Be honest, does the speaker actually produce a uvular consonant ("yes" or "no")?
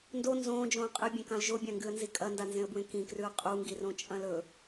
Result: yes